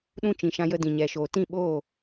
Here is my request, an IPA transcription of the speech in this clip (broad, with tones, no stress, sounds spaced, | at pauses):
ɗ ũ˧ t͡ʃ ĩ˨ ʃ ã˧ j ə˧ d ĩ˨ ɲ ɛ˨ ʃ oː˨ t ĩ˦˨ ɓ oː˦˨